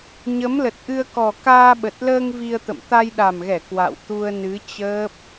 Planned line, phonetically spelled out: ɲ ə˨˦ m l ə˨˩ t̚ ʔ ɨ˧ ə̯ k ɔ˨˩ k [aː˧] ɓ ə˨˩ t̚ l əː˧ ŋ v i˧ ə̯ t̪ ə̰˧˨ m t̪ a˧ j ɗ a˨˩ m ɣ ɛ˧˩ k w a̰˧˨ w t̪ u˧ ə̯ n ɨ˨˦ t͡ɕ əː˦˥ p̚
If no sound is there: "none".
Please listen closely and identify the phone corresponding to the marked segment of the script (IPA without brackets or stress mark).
aː˧